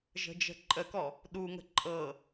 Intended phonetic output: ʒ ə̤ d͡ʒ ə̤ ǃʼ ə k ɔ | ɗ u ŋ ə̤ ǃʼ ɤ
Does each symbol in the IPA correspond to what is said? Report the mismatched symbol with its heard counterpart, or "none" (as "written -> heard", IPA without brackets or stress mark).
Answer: none